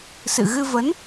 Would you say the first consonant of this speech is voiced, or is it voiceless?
voiceless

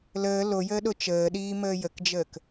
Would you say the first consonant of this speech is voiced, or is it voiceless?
voiced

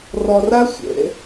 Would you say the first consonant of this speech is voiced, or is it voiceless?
voiced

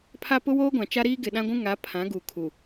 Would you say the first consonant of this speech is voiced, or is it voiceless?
voiceless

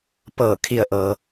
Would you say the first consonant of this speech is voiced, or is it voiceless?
voiceless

